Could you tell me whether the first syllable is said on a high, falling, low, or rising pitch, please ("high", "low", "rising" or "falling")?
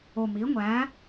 low